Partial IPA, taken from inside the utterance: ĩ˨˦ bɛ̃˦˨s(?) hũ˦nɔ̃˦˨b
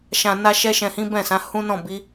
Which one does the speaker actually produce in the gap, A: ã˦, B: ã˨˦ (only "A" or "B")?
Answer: B